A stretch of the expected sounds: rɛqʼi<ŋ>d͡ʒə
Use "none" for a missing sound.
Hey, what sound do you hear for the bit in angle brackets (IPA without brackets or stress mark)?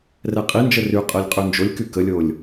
n